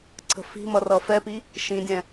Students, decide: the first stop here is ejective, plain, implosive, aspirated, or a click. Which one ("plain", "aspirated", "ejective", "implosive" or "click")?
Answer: click